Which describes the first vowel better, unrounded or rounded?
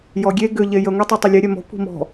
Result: rounded